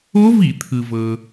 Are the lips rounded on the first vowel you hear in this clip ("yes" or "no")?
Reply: yes